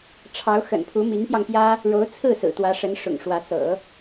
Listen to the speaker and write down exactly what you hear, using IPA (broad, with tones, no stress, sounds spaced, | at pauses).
ʈ͡ʂʰ ɑ˧˥ ʊ̯ x ə̰˨˩ n pʰ u˧˥ m i˧˥ ŋ p j ɑ˧ ŋ p j ä˥ | ɻ o˧˥ ʊ̯ t͡sʰ ɹ̩˥˩ s ɹ̩˨˩ t̪ w ä˧˥ ʂ ə˧˥ n ʂ ʊ̰˨˩ ŋ ʂ w ä˧˥ t͡s ɤ̰˨˩˦